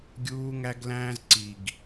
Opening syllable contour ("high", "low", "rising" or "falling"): high